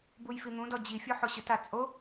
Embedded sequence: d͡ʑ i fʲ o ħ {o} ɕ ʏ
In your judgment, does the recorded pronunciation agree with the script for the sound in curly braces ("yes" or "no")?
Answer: yes